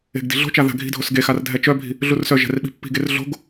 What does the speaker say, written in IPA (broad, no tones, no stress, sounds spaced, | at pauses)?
e̤ ɡ d i̤ ɮ o̤ t͡ʃ a ð a̤ ɡʱ i̤ dʱ o s ɡ e x a r dʱ ɛ t͡ʃ œ bʱ i̤ | ɮ u r s œ ʒ ɛ̤ r ɓ i̤ pː i̤ ɡ e r ɮ o̤ ɡ